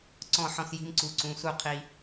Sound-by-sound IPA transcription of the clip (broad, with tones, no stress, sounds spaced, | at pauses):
ǀ ɔ̃˥˨ ħ ɔ̃˦ s j i̤˦ m ǀ u˦ ǀ ũ˦ s u˥˨ qʰ i˦